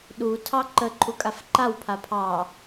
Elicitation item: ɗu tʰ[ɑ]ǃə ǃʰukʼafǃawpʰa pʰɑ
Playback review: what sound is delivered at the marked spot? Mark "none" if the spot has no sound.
ɑ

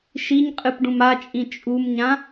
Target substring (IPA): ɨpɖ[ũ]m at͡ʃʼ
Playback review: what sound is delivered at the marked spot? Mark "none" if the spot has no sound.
ũ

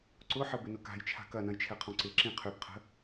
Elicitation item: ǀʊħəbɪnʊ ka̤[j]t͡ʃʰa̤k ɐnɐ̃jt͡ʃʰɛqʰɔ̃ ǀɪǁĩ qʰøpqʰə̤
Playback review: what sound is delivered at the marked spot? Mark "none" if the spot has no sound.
j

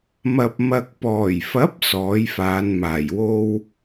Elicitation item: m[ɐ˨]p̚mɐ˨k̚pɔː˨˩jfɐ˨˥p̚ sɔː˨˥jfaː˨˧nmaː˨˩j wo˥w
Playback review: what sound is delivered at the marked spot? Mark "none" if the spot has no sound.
ɐ˨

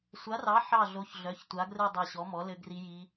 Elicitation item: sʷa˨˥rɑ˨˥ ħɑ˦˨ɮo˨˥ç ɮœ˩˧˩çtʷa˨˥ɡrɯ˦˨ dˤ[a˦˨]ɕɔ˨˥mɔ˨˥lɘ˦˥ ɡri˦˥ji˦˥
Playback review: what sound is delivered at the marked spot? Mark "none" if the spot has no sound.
a˦˨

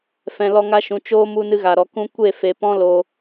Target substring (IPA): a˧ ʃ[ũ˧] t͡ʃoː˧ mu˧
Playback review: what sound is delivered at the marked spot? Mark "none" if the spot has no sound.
ũ˨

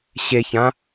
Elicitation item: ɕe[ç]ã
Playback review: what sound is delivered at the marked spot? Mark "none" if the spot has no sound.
ç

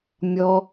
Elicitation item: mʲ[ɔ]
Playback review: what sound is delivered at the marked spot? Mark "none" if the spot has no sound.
ɔ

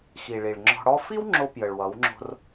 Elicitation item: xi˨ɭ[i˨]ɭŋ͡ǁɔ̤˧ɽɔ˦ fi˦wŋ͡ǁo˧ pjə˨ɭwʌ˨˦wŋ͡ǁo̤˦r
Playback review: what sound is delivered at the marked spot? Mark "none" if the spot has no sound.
i˨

